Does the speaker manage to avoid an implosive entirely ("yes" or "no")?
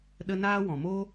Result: no